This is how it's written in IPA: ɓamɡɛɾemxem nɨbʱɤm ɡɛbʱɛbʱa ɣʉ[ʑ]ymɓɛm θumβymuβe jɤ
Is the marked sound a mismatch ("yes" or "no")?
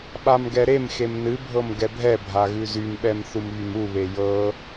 yes